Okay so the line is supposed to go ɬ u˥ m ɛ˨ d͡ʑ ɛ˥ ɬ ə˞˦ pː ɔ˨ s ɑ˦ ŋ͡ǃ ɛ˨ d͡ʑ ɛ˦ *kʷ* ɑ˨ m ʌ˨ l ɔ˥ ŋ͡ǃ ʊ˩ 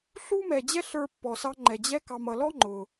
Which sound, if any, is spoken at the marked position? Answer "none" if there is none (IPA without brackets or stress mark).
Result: k